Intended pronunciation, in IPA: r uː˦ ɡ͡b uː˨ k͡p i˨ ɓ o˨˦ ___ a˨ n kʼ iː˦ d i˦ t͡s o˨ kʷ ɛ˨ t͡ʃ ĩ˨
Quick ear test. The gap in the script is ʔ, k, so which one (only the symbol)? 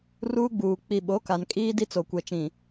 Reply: k